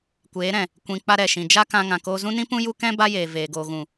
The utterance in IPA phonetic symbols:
kʷ eː˨˦ ɾ ɛ̃˨ | kʷ ĩ˨ k͡p a˧ ɾ ɛ˨ ʃ ĩ˨ d͡ʒ a˧ k ã˧ ŋ ã˨ k oː˧ z ũ˦ n ĩ˦ p ũ˦ j u˦ k ɛ̃˦ b a˦ j eː˨ v eː˨ ɡ oː˨ ɣ ũ˨

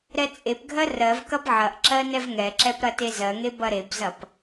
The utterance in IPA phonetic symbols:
ɾ ɛ t͡sʼ e p ɡʱ ɜ r ɜ v k ɐ b ʕ ɐ ʔ ǁ ɜ n ɛ v ŋ ɛ ǁ ɛ p ɾ ɐ t e z ɜ ŋ e b ɐ ɾ e b z ɐ p

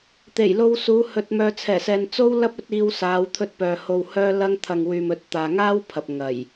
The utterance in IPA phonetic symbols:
t̪ e˨˩ j l o˧ w s uː˨˧ h ɵ˨ t̚ m œː˨ t͡sʰ ɛː˨˩ s ɛː˨ n t͡s o˥ w l ɐ˥ p̚ ɵ˨˥ t̚ iː˧ w s aː˨˧ w t̪ʰ ɵ˧ t̚ p œː˨ h o˨ w h œː˧ l ɐ˥ ŋ t̪ʰ ɐ˨ ŋ w yː˨ m ɵ˨˥ t̚ t̪ aː˨ ŋ aː˥ w pʰ ɐ˨ p̚ ŋ ɐ˨˩ j

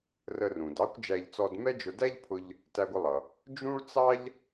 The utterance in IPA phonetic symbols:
r ə˧ r ũ˩ d ɑ˥ kʷ d͡ʒ æ˧ ʎ t͡s ɔ˧ d m ɛ˥ d͡ʒ ʊ˧ d æ˥ ʎ pʰ ʊ˧ ʎ | t æ˧ ɡʷ ə˧ lˠ ʌ˩ | d͡ʒ ũ˥ ɭ t͡s ɑ˥ ʎ

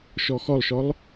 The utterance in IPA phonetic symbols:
ʃ ɔ x ɔ lˠ ʃ ɔ lˠ

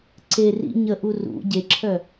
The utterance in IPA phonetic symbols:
ǀ e r ḭ ɲ ə ʔ u r ṵ ɟ e ǁʰ œ

